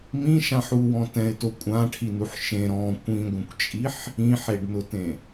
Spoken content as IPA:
m ĩ ʃ ã ħ u w ɔ̃ t ɛ̃ ɪ̯ t o kʷʼ ã ʈʰ i n u ħ ʃ ẽ ɾ ɔ̃ kʷ ĩ ɡʷ ẽ kʷ t͡ʃʼ i ħ | ĩ ħ e ɖ n ʊ t ẽ

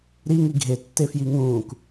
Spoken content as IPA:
ɾ i ŋ i ɡʱ e tː e f j i ŋ ũː k

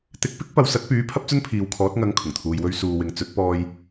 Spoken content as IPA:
t̪ ɪ˧ k̚ p ɪ˥ k̚ p ɐ˨˧ w s ɐ˨˥ t̚ p yː˨˥ pʰ ɐ˥ p̚ t͡s ɵ˥ n pʰ iː˨˧ w kʰ ɔː˨˥ t̚ ŋ ɐ˨˧ ŋ kʰ ʊ˨˩ ŋ t̪ʰ uː˨ j w ɵ˧ ɥ s uː˨ w ɪ˨ ŋ t͡s ɵ˨˥ t̚ p ɔː˧ j

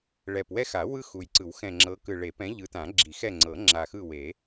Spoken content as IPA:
ɭ ɛ˨˩ p w ɛ˦ x a˨˩˦ w ɯ˦ x u˨˩ j ǀ ɯ˨˩˦ w x ɛ̃˨˩ ŋ͡ǁ ɤ˨˦ k ɯ˨˩ ɭ e˨˩˦ p ɛ̃˨˦ ʎ ɯ˨˦ t ã˨˩˦ ɡ͡ǁ i˨˩˦ x ɛ˦˨ ŋ͡ǀ ɤ˨˩˦ ŋ͡ǁ a˨˩ x ɯ˦˨ w e˨˩˦

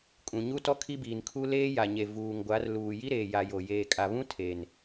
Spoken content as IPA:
kʼ ũ˨ ɲ u˦ t ɔ˦ kʰ i˦ b iː˨ n kʰ u˦ l eː˦ j a˨ ɲ e˨ v uː˨ ŋ ɡʷ a˨˦ r l uː˨ j i˦ ɾ eː˨ j a˨ j o˨ j eː˨ kʼ a˨ β ũ˦ tʰ e˨ n

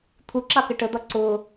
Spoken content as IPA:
t̪ʰ u ǁ ɑ k ə ʈ ə d̪ ɒ ǀ ʊ

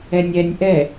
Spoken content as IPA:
ɛ nʲ ɛ nʲ ʔ ɛ

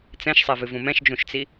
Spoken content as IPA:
t͡s ɛ̃ ʃ sˤ ɛ v ɨ v ũ m ɛ̃ ʃ d͡ʒ ũ ʃ t͡s i

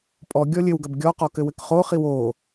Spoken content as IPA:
pʼ ɔ ɡʲ ɔ lʲ ɘ w ɡ ɐ b ɡʲ ɔ q ɔ k ɘ w ɘ k χ o χ i w o

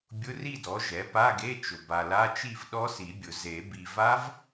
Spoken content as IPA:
bʲ ʊ˧˥˧ r i˥˨ d ɔ˩˥ ʒ ɛ˩˥ p a˧˥˧ ɡ e˧˥˧ t͡ʃ ʊ˨ b a˨ l a˧˥˧ t͡ʃ i˥˨ v ɗ ɔ˦˥ s i˨˩˦ bʲ ʊ˨˩˦ z e˨˩˦ b i˨ v a˦˥ v

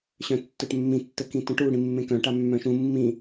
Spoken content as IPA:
ɕ œ̃ tː œ ʈ mː ĩ tː ə k ĩ t ə̃ ʈ u ɽ ĩ mː ẽ k œ̃ ʈ a mː œ̃ ʃ ũ mː ĩ

